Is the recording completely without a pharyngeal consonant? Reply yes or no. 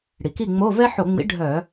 no